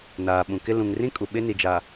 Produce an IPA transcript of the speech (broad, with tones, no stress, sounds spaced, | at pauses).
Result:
n aː˨ ɓ ũ˨ k ɪ˦ l ũ˨ ŋ r ĩ˦ kʼ u˨ ɓ ɪ˦ n i˨ d͡ʒ a˨